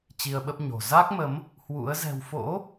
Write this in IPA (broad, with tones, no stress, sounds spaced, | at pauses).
t͡ɕ i˧ ə̯ ɓ ə˦˥ p̚ ɲ o̤˨˩ z a˦˥ k̚ m ə˨˦ m | h w ṵ˧˥ ə̯ z ɛ̤˨˩ w f o̰˧˥